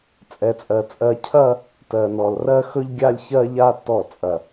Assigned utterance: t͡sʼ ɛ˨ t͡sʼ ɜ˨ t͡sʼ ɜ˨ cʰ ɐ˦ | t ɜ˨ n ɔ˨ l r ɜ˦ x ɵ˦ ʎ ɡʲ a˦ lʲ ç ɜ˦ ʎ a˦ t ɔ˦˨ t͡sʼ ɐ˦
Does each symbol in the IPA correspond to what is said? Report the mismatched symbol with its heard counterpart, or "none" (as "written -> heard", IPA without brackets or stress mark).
none